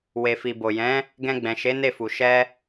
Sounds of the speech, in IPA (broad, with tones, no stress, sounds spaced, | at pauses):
w e˨ f i˨ b o˨ j ɛ̃˨˦ | ɡ ɛ̃˧ ɡ͡b ɛ̃˨ ʃ e˨˦ n e˦˨ f u˨ ʃ ɛ˧